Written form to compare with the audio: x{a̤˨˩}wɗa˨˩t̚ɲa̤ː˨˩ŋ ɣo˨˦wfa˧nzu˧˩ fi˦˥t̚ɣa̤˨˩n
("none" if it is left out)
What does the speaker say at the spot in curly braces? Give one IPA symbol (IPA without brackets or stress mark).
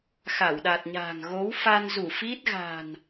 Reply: a˧˩